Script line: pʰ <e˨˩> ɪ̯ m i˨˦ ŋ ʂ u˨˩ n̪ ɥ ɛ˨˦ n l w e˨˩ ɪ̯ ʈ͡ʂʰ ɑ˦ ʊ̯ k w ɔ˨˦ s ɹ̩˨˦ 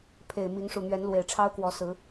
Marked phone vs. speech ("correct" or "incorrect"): correct